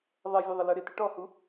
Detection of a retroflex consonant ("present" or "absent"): present